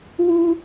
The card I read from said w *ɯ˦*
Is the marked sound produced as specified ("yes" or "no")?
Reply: no